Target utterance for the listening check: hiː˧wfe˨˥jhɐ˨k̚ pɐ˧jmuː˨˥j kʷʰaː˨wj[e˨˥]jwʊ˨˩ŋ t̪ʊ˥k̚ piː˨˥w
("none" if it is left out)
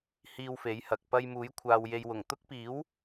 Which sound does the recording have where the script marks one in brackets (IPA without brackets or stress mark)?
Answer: e˨